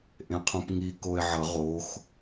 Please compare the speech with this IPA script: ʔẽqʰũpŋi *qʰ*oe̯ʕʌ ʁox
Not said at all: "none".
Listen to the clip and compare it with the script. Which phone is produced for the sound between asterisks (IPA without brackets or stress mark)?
k